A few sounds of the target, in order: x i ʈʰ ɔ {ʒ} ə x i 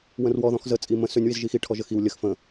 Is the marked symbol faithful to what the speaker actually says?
yes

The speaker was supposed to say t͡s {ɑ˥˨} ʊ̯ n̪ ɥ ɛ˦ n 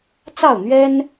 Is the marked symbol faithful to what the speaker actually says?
yes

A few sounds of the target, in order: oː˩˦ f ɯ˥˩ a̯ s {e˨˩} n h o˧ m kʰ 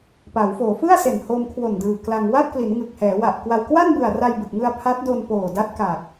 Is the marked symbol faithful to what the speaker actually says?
yes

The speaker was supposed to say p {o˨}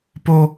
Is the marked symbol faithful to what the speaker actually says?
no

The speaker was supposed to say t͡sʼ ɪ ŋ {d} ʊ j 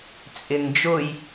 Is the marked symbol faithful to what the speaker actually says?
no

